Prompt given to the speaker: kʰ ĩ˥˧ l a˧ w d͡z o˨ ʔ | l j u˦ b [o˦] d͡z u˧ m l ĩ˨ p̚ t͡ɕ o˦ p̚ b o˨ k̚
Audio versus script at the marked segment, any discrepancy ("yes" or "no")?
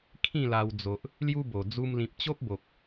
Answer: yes